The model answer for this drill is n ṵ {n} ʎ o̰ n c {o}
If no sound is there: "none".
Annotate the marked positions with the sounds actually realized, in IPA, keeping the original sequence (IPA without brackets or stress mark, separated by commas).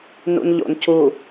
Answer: n, u